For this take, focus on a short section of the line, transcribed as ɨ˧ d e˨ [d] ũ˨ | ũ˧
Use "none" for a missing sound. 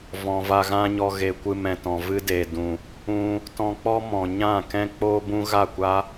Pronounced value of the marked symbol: d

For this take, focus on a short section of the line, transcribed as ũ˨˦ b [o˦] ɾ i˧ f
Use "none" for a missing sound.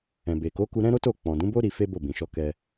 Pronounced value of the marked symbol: o˦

